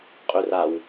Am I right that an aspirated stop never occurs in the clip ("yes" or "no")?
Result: yes